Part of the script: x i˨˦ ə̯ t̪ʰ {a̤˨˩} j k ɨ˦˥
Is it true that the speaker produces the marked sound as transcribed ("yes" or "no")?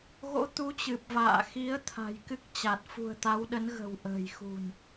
yes